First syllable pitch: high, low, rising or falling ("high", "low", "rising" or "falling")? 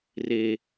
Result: high